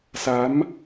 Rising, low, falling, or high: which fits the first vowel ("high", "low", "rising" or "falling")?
rising